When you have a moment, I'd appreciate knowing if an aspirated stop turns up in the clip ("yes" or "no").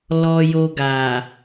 no